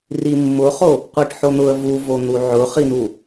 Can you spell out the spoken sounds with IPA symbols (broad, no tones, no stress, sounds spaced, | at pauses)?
r i mː ʊ χ o | qʷ i ʈ ħ o n̪ ʊ ə̯ v u v o n̪ u ʕ ʊ χ i n̪ u